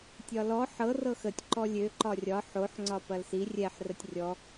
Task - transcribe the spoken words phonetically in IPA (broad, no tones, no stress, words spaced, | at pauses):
tʲɒlɔ ħɤ rɤxətʲ ǃɔlʲø ǃɒrʲɒ ħoħ ŋ͡ǀɒpɐlsi rʲɛħ rətʲrʲɔ